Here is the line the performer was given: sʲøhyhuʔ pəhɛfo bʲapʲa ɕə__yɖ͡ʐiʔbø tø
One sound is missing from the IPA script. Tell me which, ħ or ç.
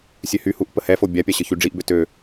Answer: ç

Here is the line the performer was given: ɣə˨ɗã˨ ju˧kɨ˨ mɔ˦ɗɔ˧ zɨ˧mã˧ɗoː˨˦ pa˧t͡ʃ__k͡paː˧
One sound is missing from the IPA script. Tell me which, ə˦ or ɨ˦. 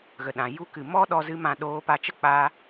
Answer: ə˦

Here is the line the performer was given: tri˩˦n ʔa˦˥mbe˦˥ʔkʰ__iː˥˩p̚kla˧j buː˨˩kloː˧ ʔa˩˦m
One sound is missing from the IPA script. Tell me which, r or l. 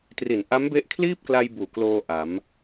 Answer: l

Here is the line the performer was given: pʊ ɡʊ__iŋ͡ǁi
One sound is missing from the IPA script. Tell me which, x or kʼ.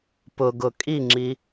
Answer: kʼ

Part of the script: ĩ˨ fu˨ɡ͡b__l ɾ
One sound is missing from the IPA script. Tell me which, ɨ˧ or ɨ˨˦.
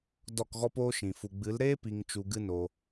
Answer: ɨ˨˦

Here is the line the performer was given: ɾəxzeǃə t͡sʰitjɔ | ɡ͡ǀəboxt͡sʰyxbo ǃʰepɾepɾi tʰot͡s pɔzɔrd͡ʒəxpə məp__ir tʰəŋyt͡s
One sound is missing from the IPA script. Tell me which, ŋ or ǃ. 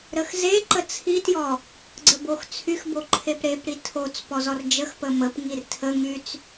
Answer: ŋ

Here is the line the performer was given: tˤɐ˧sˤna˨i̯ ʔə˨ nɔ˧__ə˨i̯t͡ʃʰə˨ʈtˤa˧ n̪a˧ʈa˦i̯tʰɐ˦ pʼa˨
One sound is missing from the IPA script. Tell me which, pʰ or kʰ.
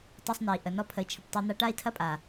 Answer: pʰ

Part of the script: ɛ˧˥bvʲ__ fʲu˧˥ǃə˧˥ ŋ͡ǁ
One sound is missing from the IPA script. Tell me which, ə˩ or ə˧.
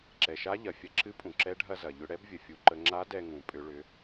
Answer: ə˩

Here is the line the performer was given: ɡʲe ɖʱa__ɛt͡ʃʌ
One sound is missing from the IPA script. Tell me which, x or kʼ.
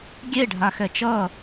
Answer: x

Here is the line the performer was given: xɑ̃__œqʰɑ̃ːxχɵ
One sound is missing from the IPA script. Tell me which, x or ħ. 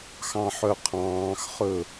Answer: ħ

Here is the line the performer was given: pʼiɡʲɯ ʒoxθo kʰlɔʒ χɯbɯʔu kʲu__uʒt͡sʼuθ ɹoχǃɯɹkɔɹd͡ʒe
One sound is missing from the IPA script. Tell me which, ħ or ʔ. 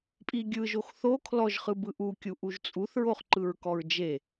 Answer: ʔ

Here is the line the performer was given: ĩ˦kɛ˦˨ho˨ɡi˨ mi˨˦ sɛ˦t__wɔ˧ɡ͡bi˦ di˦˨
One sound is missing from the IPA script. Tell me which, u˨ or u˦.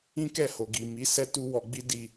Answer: u˦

